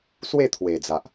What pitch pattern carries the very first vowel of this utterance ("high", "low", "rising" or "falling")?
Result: falling